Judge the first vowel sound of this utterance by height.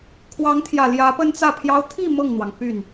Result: low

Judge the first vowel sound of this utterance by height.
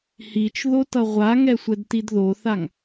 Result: high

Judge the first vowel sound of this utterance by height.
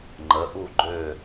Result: mid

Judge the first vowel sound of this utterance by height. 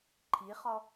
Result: high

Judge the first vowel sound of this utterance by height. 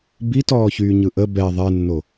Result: high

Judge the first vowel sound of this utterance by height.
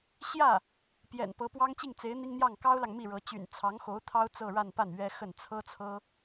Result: low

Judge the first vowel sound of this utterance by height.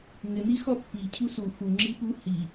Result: high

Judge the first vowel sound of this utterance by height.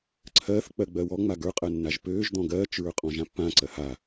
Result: mid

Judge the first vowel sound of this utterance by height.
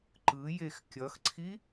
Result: high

